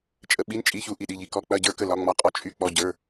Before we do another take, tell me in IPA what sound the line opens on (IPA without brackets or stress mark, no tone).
t͡ʃʼ